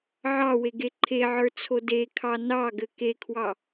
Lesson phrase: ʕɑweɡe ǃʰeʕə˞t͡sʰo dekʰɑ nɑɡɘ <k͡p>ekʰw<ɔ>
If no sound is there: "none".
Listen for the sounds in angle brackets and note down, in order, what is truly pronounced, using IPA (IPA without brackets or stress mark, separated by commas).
k, ɑ